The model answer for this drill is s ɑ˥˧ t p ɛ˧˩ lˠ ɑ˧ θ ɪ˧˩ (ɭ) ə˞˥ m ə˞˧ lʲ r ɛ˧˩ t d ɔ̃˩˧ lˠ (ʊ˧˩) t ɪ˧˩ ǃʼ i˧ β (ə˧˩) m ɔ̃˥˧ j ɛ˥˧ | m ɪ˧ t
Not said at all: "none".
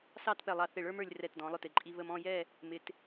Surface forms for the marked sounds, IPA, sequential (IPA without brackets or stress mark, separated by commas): ɭ, ʊ˧˩, ə˧